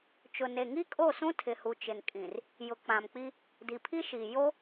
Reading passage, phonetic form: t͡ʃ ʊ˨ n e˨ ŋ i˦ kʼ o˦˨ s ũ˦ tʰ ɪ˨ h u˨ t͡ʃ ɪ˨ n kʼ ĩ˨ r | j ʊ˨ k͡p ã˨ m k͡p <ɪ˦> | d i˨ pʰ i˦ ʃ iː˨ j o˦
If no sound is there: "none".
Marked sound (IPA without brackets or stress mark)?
i˦